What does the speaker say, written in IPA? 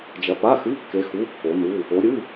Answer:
d͡ʒɐ˨˦pa˧˥˧xɨ˧˥˧kːe˨˦ xu˧˥˧kːo˨˦nu˧˥˧ | o˨˦ɾʲɨ˧˥˧

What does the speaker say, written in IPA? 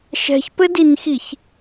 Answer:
ʃɛ̤çpɘdinxiç

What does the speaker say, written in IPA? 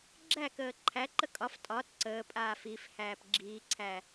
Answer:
ɡ͡ǁækəː ǃʰæǃə kʼɒf tʼɒt ǀəːpʼaːf ifhæːp ɡ͡ǁiːǀʰæ

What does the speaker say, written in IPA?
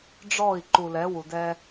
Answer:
ɖ͡ʐɔ˦˨i̯ ǃu˨lɛ˨˦wu˨dɛ˦

